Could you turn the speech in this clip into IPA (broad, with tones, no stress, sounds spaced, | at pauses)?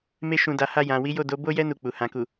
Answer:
m e˧ ʃ ũ˨ d a˨ h a˧ j ã˨ w i˨˦ j o˦˨ d o˨˦ b o˦ j ɛ˦ n u˦˨ k͡p u˨ h ã˨ k u˨